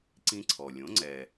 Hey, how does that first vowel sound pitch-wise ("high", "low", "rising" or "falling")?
high